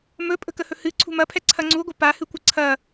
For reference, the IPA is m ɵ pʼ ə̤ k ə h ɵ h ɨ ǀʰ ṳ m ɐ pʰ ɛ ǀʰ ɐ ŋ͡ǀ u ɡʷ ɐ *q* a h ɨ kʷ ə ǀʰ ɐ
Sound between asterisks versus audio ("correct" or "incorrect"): incorrect